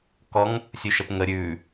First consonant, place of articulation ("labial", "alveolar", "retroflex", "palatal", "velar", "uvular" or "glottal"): velar